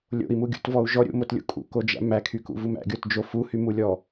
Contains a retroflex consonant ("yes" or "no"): no